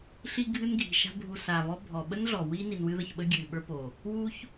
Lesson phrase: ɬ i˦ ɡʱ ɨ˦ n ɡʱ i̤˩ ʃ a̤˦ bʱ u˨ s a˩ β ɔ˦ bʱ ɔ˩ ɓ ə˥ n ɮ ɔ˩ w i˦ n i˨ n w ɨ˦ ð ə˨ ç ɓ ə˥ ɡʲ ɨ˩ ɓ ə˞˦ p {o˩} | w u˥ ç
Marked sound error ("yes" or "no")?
no